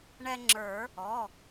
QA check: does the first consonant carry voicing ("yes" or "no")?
yes